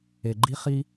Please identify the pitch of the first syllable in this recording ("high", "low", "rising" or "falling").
low